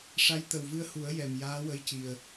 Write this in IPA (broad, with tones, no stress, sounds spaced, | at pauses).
ʂ a˧˥ j t̪ ə˨˩ w v ɨ˧ ə̯ h u˨˩˦ ə̯ j ɛ˨˩ m j aː˧˥ w ə˧˥ j c i˨˩ ə̯